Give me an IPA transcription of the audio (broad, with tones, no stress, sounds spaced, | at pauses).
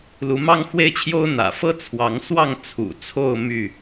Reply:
l u˨˦ m ɑ˦ ŋ x w e˦ ɪ̯ t͡ɕʰ j o˦ ʊ̯ n̪ ä̰˨˩ f ɤ˦ t͡sʰ w ɑ˨˦ ŋ s w ɑ˥˨ ŋ t͡sʰ ṵ˨˩ t͡sʰ o˥˨ ʊ̯ m y˥˨